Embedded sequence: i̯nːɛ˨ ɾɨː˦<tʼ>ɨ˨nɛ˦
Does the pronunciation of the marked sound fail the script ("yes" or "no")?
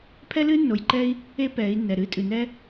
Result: no